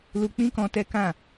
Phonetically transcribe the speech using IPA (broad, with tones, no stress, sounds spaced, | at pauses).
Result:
l u˧ k͡p ĩ˦ k ɔ̃˧ t ɛ˦ k ã˦˨